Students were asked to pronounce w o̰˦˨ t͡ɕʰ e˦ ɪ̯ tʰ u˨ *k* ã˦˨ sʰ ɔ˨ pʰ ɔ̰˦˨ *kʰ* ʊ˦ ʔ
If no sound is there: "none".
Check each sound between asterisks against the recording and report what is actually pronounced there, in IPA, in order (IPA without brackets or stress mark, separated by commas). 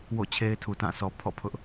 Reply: t, pʰ